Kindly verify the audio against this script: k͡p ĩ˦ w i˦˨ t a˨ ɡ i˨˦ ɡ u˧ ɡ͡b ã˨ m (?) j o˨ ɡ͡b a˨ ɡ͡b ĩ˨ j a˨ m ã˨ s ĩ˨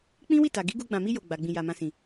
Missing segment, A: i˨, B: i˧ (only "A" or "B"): B